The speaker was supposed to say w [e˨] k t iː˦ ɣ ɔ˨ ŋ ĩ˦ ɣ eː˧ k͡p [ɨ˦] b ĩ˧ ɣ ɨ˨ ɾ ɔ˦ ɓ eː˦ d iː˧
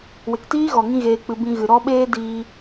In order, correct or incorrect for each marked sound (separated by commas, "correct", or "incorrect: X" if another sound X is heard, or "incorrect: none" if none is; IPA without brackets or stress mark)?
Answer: correct, incorrect: ɨ˧